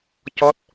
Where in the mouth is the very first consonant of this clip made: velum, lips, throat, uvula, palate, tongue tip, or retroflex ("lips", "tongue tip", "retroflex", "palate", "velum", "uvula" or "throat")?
palate